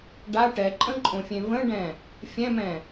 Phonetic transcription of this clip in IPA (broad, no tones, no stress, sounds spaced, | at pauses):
ɖ a ʈ ɛ ǃʼ ə̃ ǃʼ õ fʲ ẽ v ə̃ ɖ ɛ̃ | fʲ ɛ̃ m ɛ̃